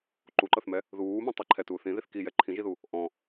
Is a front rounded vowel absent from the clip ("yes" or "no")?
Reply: yes